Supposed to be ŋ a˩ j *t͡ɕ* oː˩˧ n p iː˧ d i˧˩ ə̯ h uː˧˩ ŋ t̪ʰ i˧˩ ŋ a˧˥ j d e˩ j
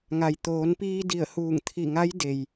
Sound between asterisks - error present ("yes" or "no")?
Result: yes